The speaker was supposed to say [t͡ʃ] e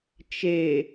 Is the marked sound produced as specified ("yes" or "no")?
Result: yes